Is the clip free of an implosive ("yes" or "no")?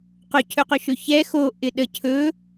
no